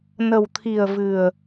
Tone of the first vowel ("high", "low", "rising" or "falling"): low